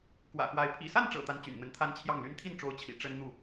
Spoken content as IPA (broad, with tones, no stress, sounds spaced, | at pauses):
k w ä̰˨˩ x w a˧˥ ɪ̯ pʰ ḭ˨˩ s a˥˩ n ʈ͡ʂ ɤ̰˨˩ t̪ a˥ n t͡ɕ y̰˨˩ n n̪ ə˧˥ n t̪ʰ a˥ n t͡ɕʰ j ɑ˥˩ ŋ l y˥ n t̪ʰ i˥˩ n ʈ͡ʂ o˧˥ ʊ̯ t͡ɕʰ ḭ˨˩ ʈ͡ʂ ə˥ n n̪ u˥˩